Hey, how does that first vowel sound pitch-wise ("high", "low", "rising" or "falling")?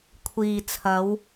low